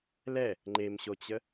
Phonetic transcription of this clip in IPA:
l ɛ | ŋ͡ǃ e m ɕ o t͡ɕ ə

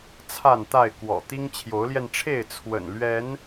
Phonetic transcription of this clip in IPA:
t͡sʰ a˥˨ n t̪ a˥˨ ɪ̯ k w ɔ̰˨˩ t̪ i˦ ŋ t͡ɕʰ j o˨˦ ʊ̯ l j ɛ˧ n ʈ͡ʂʰ e˥˨ ɪ̯ t͡sʰ w ə̰˨˩ n l ɥ ɛ˨˦ n

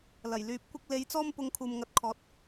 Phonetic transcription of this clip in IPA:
l ɐ˨˩ j l yː˨˥ p̚ kʷ ɪ˧ k̚ l e˨˧ j t͡s ɔː˥ m p ʊ˧ ŋ kʰ uː˨ m ŋ ɐ˨˥ t̚ kʰ ɔː˨˥ t̚

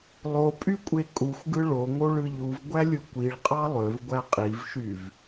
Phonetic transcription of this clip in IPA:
lˠ o pʼ y kʷʼ e kʼ u xʷ ɡ ɯ ɭ o ŋ o ɭ ɯ ʎ u v ɡʷ æ lʲ ɯ kʷ i ɭ qʼ ɑ lˠ ø v ɡʷ æ qʼ i v ʃ y v

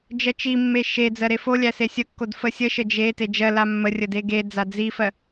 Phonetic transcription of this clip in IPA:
d͡ʒ ɜ t͡ʃ i mː e ʃ e d͡z ɜ ɾ e f o lʲ æ s e sʲ ə kː o d f ə sʲ ə ʃ ə d͡ʒ e t e d͡ʒ ɜ l a mː ə rʲ ə d e ɡ e d͡z a d͡z i f ɜ

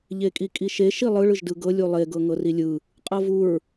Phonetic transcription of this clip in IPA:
ʎ e kʼ i kʼ i ʃ e ʃ i lˠ ɯ ɭ ɯ ʒ d ɯ ɡ ɤ lʲ u lˠ e ɡ ɤ ŋ ɤ r i lʲ ɯ | qʼ ɤ v u ɹ

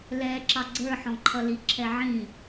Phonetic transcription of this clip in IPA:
l ɛ ǁ ɑ ɡ͡ǀ ə˞ ħ ɔ̃ ǃʰ ʌ l i ǁʰ ɛ ʕ ĩ

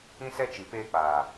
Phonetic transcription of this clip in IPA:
ĩ˦ s ɛ˦ t͡ʃ i˨ p eː˧ k͡p aː˨

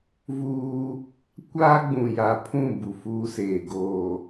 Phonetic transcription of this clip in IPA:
v uː˦ | kʷ aː˦ ɡ͡b ũ˨ j a˨ pʰ ũ˦˨ b u˨ f uː˦ s eː˨ ɡ oː˨

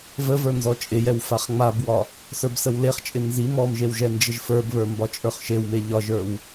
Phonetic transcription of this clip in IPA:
v ə v ə˞ n z ɔ t͡ʃʼ ɪ j ɛ w f a χ ŋ͡m a b w ɒ | s ə˞ b s ə w l e χ t͡ʃʼ ɪ n z i m ɔ m ʒ e w ʒ ɛ n d͡ʒ ɪ ʒ f ə˞ b β ə˞ m b ɒ t͡ʃʼ ə˞ χ ʃ e w m e ʎ ɒ ʒ ə˞ w

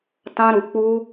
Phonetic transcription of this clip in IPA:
t ã˧ ɾ u˨ k͡p u˧

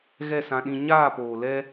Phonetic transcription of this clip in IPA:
ɣ ɛ˦˨ s ã˧ ɗ ĩ˧ ɲ aː˦˨ p oː˨ l ɛ˦

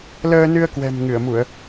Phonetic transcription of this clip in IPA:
l əː˧ n ɨ˧ ə̯ k w ɛ̤˨˩ m ŋ ɨ˧˩ ə̯ m u˧˩˨ ə̯

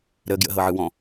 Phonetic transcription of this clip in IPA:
ɾ ə ɡ j ə̰ ɦ ɤ ʕ ɯ w ɔ̃

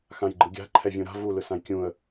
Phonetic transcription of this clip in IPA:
x ã j ɡ͡ǃ ɯ ɡʲ a̤ ǃʰ ɛ vʲ ũ ɾ a̤ v u l ɯ s ã j kʲ ũ ə̯

